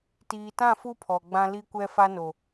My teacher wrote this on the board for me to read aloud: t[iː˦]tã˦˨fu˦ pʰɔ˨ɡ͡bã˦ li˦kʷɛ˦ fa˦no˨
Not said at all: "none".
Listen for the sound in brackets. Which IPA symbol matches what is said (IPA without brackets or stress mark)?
iː˨